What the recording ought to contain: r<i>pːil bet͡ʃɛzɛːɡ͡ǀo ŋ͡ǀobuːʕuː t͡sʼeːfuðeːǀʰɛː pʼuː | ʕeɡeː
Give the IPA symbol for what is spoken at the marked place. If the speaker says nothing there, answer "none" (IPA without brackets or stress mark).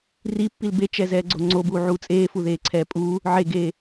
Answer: i